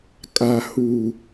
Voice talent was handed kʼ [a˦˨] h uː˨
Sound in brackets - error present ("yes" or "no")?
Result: yes